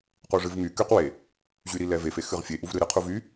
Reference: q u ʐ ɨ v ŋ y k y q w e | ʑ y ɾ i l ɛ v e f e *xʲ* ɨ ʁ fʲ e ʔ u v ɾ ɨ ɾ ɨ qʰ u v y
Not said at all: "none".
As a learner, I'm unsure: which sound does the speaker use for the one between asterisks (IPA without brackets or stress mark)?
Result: x